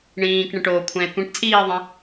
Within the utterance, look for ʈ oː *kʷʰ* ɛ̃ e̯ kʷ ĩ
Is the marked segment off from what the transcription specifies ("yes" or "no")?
no